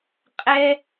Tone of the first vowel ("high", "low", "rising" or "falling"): high